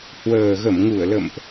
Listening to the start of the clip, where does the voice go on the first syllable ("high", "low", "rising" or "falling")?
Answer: low